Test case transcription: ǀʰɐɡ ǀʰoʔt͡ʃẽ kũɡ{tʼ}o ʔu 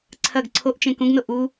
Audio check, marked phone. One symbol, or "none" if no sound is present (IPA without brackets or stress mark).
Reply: n